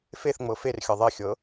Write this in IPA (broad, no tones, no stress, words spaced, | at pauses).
feθŋ͡mɤ ferxʲɤ ðˤexʲɤ